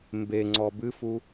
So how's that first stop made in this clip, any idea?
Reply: plain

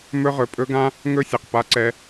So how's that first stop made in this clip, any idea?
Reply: ejective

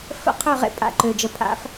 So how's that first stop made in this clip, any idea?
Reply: aspirated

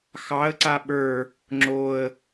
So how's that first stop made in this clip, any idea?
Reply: click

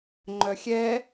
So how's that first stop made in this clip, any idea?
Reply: click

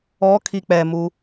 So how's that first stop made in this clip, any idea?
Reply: aspirated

